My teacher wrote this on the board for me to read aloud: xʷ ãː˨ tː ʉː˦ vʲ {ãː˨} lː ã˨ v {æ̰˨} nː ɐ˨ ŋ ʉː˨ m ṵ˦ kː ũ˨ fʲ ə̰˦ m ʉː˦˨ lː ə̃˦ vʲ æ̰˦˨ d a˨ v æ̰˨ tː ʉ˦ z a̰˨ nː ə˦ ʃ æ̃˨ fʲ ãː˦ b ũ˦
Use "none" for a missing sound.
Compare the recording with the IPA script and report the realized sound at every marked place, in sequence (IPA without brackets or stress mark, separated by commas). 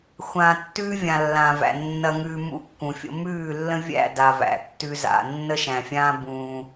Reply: ã˨, æ̰˨